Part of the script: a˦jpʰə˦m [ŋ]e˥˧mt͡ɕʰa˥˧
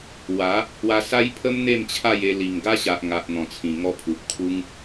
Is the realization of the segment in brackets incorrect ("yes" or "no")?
yes